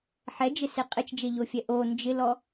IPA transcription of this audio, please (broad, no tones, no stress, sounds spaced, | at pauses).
ħ ɛ d͡ʒ ɪ s e qʼ ɪ t͡ʃ d͡ʒ e ʎ o fʲ ɛ ʔ o n d͡ʒ ɪ l ɔ